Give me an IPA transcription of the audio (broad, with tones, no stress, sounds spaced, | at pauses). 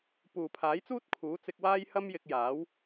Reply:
p uː˨˩ pʰ aː˨˥ j t͡s uː˥ t̚ kʰ uː˨˥ t͡s ɪ˧ k̚ w aː˥ j h ɐ˥ m j ɪ˧ k̚ j aː˨˥ w